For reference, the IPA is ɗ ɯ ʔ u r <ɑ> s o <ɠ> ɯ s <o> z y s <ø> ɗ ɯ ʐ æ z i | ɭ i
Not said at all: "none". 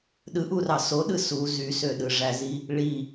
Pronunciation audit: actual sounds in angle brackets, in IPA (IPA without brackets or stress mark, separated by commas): ɑ, ɗ, u, ø